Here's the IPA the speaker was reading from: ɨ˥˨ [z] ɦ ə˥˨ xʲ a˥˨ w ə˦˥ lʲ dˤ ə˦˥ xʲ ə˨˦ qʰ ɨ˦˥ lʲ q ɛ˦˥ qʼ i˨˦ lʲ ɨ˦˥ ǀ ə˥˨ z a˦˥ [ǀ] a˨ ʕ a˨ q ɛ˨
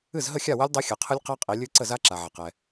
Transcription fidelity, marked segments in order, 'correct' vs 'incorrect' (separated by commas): correct, incorrect